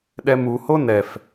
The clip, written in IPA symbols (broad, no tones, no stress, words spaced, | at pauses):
ɗɛmuho nɛf